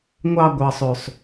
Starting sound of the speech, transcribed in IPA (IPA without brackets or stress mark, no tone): ŋʷ